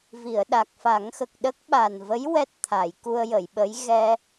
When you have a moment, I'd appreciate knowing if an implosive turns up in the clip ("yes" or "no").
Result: yes